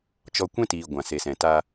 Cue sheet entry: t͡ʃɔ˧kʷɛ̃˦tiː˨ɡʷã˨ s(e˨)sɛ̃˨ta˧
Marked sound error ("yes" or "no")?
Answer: no